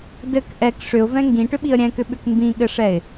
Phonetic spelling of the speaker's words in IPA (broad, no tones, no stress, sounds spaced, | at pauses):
d ɘ k ʔ ɛ k ʂ ʏ ʊ̯ v ɛ̃ ŋ ɡ ĩ ʈ ʏ ɓ i ə̯ ɾʲ ɛ̃ k ʏ ɓ ʏ k m b ĩ ɠ ɘ ʂ ɛ ɪ̯